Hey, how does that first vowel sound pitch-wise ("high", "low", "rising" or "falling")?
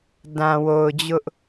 low